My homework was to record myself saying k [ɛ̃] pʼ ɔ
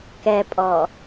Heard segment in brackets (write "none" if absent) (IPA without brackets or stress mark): ɛ